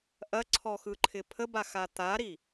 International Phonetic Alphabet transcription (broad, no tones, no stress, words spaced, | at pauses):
ʔɐǀʰɔxɯǃʰɪ pʰəbaxa t̪aɾi